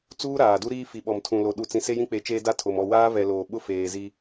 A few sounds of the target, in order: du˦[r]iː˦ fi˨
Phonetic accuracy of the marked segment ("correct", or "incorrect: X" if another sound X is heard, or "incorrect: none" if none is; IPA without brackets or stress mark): incorrect: ɾ